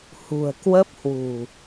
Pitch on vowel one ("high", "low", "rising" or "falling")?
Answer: low